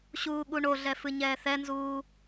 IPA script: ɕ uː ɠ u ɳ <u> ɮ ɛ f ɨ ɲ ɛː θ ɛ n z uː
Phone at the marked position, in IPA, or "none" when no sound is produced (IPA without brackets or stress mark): o